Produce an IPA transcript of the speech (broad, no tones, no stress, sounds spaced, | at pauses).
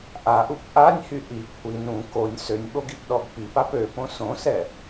ʔ a ʔ u p ʔ a nʲ h y ʔ i kʷʰ i n ũ k o nʲ s ø nʲ ɓ o ɡ i p ɗ ɔ ɡ p i p a p ø p õ s õ s ɛ